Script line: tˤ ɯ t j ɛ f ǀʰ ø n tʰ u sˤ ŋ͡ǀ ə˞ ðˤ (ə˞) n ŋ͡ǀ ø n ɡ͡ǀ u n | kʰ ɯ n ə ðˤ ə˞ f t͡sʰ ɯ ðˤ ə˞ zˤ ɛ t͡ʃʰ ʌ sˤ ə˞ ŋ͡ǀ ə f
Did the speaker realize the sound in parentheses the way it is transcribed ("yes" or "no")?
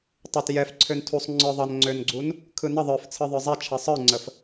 no